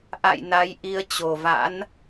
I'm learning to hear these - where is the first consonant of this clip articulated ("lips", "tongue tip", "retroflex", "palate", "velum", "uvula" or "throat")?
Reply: throat